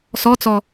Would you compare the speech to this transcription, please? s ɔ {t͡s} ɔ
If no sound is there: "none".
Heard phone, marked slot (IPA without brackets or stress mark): t͡s